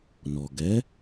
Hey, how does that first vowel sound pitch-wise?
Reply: low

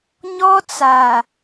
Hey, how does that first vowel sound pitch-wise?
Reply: high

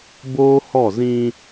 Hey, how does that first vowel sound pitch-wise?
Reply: high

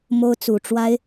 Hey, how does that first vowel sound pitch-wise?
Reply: high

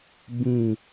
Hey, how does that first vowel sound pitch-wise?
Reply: falling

